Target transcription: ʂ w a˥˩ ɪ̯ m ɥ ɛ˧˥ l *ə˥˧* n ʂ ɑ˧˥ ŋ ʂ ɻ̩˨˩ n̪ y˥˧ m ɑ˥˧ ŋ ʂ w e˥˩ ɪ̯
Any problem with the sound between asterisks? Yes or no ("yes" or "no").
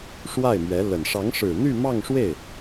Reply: yes